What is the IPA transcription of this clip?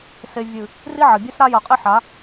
s e˨ vʲ ɨ˨ | r i˦ ʕ ɐ˨ bʲ ʉ˦ s ɾ a˦ j ɐ˨ qʼ e˦ ħ a˨˦

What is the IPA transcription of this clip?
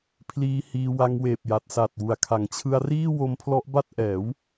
pʰ l iː˦˥ h iː˧ w a˧ ŋ w eː˨˩ p̚ j a˨˩ t̚ s a˨˩ t̚ w u˨˩ a̯ kʰ a˩˦ ŋ t͡ɕʰ ɯ˧ a̯ r iː˥˩ w o˦˥ m pʰ l ɔ˦˥ ʔ b a˥˩ t̚ ʔ ɛː˩˦ w

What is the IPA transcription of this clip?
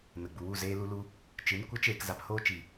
n ə˨ ɡ͡b u˨ w u˦˨ z eː˧ l u˧ l u˧ | t͡ʃ ɨ˨˦ n kʷ ə˨˦ t͡ʃ eː˨ k z a˨ p h oː˧ t͡ʃ i˨

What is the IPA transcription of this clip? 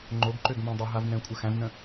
ŋ͡ǃ o ɡ ǃ ø ɡ m ã dˤ ə ɦ a v n ɛ̃ kʷʼ ə x æ̃ v n ə̃

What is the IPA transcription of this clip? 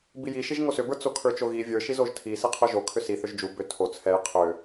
b i j i ʃ i ʒ ŋ o s ʏ b ə˞ t͡s o kʰ ə˞ t͡ʃ o ɣ i vʲ ə˞ ʃ i z o ʒ tʰ i s i qʰ o ʒ o kʰ ʏ s i θ ʏ ʒ d͡ʒ u b ʏ tʰ o t͡sʰ ɛ j qʰ ʏ

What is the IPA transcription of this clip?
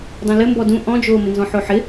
dˤ õ l ɘ m b ɔ d ũ ʔ ɔ̃ d͡ʒ oː m ɪ n z ɔ̃ ħ o ħ ɪ

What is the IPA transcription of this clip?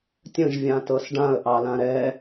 tʲ ə̃ ʒ vʲ ã t ɤ s ɖ ã ə̯ ʔ ɑ l ã ɾ ɛ

